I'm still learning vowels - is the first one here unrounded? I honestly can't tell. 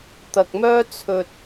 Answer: yes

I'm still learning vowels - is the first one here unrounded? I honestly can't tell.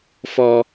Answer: no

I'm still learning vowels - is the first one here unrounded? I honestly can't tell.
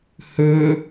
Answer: no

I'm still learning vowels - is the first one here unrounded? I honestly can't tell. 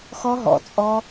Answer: no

